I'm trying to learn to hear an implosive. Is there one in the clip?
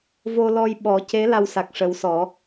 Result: yes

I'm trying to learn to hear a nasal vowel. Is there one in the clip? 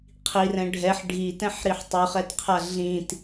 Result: yes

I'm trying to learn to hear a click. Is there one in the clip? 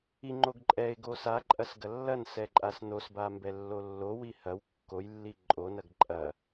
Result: yes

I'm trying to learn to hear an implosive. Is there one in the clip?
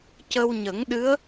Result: yes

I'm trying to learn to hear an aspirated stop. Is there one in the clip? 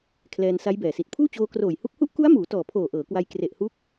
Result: yes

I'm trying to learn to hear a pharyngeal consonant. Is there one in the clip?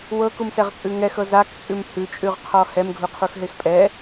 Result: no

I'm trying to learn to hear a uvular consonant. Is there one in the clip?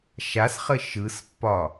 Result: yes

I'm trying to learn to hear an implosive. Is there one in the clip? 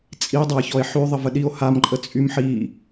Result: yes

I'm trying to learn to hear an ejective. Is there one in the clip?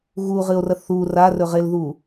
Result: no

